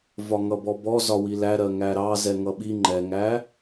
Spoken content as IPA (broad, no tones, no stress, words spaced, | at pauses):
vɒŋʌbɔbɔ zɒwilæɾɜ ŋæɾɑ zɛŋʌɓi ŋ͡ǃɛŋæ